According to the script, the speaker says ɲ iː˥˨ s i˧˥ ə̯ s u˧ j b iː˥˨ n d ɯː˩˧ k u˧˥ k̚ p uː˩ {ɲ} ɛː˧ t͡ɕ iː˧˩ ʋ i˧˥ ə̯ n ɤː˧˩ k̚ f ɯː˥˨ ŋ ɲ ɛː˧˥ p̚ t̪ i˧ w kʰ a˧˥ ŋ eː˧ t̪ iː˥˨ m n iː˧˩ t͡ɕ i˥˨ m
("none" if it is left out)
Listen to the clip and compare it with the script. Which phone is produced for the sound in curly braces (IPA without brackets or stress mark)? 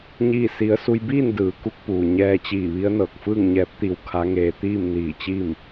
ɲ